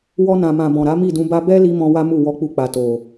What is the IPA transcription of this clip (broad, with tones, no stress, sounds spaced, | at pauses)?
w ɔ˧ n ã˨ m ã˨ b ɔ̃˨ ɾ a˨˦ m i˦˨ d ũ˧ b a˦ b ɛ˦ l i˧ m ɔ̃˧ w a˦ m u˦˨ w ɔ˧ k͡p u˧ k͡p a˨ t o˨